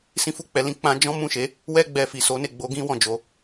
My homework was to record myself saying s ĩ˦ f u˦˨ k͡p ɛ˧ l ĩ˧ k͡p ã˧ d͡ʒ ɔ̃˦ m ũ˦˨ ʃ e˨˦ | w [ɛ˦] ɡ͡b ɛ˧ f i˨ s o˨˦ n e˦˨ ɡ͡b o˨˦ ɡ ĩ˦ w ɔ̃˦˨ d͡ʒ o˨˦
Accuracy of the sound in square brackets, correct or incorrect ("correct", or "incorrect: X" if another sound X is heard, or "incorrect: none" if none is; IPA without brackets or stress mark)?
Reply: correct